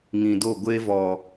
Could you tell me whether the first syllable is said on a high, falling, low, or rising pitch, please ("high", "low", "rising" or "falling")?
low